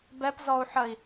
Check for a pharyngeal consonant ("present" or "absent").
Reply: present